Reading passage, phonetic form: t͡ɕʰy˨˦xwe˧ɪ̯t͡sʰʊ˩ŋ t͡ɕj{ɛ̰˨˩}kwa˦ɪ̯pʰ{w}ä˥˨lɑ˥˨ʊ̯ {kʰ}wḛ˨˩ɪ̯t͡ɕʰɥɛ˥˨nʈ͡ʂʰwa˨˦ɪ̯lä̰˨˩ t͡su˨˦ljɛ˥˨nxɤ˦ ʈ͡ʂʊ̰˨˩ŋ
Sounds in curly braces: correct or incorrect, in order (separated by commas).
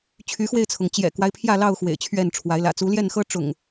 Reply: correct, incorrect, incorrect